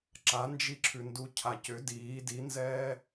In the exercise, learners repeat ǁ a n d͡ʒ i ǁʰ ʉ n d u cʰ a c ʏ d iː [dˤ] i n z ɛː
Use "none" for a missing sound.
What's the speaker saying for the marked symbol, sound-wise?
d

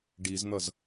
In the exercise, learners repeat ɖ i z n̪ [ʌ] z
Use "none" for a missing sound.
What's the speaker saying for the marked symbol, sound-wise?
ʌ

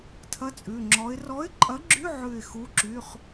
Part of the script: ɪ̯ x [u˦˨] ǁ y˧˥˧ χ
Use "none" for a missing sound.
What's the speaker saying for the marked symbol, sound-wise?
u˧˥˧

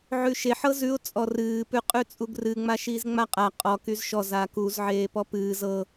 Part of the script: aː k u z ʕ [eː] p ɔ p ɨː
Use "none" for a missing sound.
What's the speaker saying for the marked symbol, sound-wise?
eː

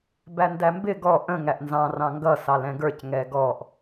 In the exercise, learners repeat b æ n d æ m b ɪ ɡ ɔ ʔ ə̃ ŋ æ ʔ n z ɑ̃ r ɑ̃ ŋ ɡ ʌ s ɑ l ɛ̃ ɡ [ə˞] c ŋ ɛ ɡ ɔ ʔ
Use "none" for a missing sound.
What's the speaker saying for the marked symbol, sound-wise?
ə˞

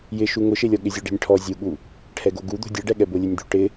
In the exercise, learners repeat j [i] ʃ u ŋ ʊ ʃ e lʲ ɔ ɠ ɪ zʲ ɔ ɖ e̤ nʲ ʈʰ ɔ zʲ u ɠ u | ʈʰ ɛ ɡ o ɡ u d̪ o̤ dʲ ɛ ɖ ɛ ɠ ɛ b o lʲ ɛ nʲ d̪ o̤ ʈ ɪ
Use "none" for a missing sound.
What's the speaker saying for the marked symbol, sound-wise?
ɪ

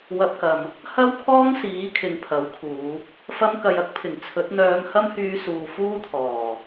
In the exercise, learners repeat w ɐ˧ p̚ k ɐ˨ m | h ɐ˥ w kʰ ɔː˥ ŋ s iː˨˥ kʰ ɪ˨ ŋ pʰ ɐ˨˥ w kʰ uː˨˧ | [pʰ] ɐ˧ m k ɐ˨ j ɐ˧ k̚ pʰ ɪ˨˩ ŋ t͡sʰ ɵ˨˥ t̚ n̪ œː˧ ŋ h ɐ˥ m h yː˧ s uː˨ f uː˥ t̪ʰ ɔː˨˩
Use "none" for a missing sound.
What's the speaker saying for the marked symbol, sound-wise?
f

